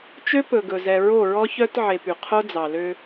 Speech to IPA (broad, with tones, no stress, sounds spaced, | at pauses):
t͡ʃ ø˦ p ɵ˨ ɡ ɵ˨ z ɛ˨ ɹ o˦˨ ɹ ɔ˦ ç œ˦ t ʕ e˨ p y˨ qʰ o˦ d͡z ɑ˨ l ø˦